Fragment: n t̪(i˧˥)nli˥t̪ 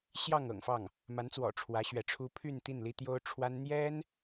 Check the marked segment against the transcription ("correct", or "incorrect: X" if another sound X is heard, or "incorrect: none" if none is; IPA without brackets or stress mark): incorrect: i˥˩